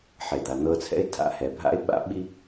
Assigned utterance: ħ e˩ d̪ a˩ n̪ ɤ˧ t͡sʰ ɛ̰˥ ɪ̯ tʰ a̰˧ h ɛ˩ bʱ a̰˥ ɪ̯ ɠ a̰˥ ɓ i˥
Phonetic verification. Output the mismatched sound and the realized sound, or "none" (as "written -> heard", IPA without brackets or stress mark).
ɠ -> ɓ